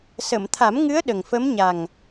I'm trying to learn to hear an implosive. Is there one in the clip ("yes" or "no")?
yes